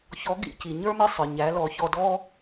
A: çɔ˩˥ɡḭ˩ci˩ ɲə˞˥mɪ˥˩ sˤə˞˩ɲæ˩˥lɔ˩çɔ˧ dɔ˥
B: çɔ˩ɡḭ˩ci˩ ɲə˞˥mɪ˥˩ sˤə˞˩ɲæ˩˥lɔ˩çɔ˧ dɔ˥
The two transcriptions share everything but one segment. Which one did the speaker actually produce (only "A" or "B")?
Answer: A